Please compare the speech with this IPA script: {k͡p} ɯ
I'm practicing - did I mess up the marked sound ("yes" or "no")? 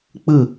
no